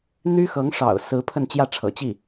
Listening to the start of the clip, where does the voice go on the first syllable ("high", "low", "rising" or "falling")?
high